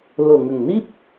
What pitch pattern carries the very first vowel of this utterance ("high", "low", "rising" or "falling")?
low